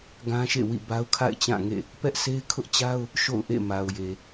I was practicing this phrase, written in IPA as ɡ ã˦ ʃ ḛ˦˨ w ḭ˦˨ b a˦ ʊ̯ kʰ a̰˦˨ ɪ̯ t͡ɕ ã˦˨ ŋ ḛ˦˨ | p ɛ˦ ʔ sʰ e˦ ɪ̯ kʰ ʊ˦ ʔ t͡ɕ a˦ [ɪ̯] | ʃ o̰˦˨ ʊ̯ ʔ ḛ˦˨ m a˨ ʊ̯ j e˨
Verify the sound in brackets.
incorrect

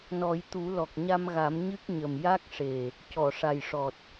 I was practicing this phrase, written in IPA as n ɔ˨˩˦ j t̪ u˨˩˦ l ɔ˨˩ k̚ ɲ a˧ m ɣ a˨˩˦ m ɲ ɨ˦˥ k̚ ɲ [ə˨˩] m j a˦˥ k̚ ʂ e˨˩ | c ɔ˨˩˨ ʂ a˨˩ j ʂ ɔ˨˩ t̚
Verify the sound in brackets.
correct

